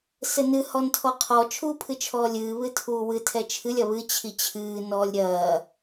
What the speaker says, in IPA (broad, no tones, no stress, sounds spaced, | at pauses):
s ɘ n ɨ h ɔ n tʰ ɔ qʰ ɔ t͡ʃʰ uː pʰ ɨ t͡ʃʰ ɔː lʲ ɨː β ɨ tʰ uː w ɨ tʰ ɛ t͡ʃʰ ɨ lʲ ɐ β ɨ t͡ɕʰ i t͡ɕʰ ɨː n ɔː lʲ ɾʲ ɐː